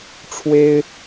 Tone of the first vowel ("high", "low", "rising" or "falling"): high